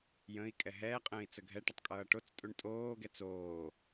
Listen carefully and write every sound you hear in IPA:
j ə̃ i̯ kʼ ɛ ɦ ɛː qʼ ə̃ː i̯ t͡s ə ɡʱ ɛ ʈ ʌ tˤ kʼ ʌː ʈ o t͡s tʼ u ɳ tʼ oː ɡ ɛ t͡s oː

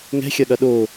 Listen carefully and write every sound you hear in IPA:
ŋ ɛ̤ xʲ ɐ ɠ ɐ ɗ o

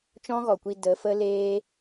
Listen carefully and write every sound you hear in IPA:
t͡ʃ ɔ̃˦ ɣ ɔ˨ kʷ i˧ d ə˨˦ f ə˦ l eː˦

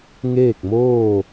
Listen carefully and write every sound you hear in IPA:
ŋ eː˥˨ k̚ m oː˥˨

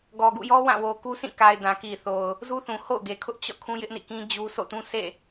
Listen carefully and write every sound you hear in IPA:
ɡ ɔ˨ ɡ ṵ˦˨ j ɔ˦ w ã˦˨ w o˨ k u˦ s ĩ˦˨ k a˨ ɪ̯ d ã˨ k i˨ θ o˨ ʊ̯ | z u˦ θ ũ˨ h o̰˦˨ ʊ̯ ɡ e˨ kʰ ʊ˦ ʔ t͡ɕ ɔ̰˦˨ kʰ ũ˦ j ɪ˦ ʔ n ḭ˦˨ k ĩ˦ d͡ʑ u˦ sʰ o̰˦˨ t ũ˦ s ḛ˦˨

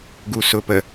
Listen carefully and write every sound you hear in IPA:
ɡ u s ʊ p ə

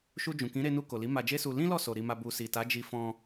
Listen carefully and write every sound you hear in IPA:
ʃ u˧ d͡ʒ ũ˨ k ĩ˨˦ ɾ e˧ n u˧ k o˨ l i˨˦ m a˧ d͡ʒ e˦ s u˧ l ĩ˦ l ɔ˦˨ s o˨ ɾ i˨ m a˨ b u˨ s i˨ t a˨˦ d͡ʒ i˧ f ɔ̃˧

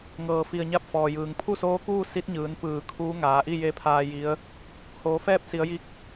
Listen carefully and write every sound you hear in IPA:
ŋ ɤː˧˩ f i˧˩ ə̯ ɲ a˥˨ p̚ f ɔː˩ j ɯː˩ ŋ pʰ u˥˨ s oː˧˥ k uː˥˨ s i˧˥ t̚ ɲ ɯː˩˧ n p ɯː˧˩ kʰ uː˧˥ ŋ aː˩˧ ʔ i˥˨ j e˧˥ pʰ aː˧ j i˧˥ ə̯ | h oː˩˧ f ɛː˥˨ p̚ s i˩˧ ə̯ j i˧˥ k̚

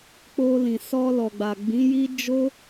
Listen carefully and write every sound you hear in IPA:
k͡p o˧ l ĩ˨ s ɔ˧ l ɔ˨ ɡ͡b a˨ ɡ͡b ĩ˨˦ j i˦ d͡ʒ o˦

